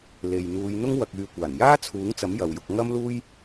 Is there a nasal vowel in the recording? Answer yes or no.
no